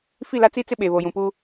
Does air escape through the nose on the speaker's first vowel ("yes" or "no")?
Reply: no